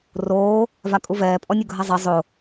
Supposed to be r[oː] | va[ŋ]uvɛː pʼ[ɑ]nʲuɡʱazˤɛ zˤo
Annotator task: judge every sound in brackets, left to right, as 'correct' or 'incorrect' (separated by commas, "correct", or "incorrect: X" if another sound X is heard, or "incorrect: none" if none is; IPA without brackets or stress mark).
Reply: correct, incorrect: kʼ, incorrect: ɔ